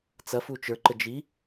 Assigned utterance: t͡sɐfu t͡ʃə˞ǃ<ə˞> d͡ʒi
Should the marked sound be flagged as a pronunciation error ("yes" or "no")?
yes